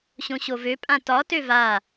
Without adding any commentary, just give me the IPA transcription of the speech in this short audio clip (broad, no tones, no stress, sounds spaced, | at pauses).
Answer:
ɕ õ ɕ o v ø pʼ ã t ɒ t ø v a